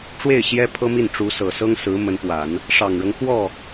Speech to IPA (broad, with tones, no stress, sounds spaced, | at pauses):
ʈ͡ʂ w e˥˩ ɪ̯ ɕ j ɛ˥ pʰ ɤ˥ m i˥˩ n ʈ͡ʂ u˧˥ s ɤ˨˩ s ɤ˥ ŋ s ɹ̩˧˥ m ə˧˥ n p w a˨˩˦ n | ʂ ɑ˨˩ ŋ ɻ ɤ˦ ŋ x w ɔ˥˩